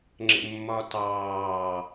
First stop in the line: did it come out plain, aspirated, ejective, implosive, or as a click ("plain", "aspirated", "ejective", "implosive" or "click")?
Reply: click